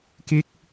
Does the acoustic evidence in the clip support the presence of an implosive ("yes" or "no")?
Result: no